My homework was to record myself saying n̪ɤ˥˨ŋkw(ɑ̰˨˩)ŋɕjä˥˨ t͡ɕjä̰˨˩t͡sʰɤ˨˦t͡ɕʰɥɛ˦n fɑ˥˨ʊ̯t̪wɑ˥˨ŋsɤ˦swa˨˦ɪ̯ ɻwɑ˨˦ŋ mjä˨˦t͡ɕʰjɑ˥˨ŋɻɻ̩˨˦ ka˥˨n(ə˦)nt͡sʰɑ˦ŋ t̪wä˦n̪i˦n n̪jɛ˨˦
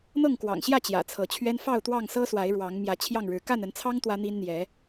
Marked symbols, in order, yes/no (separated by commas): yes, no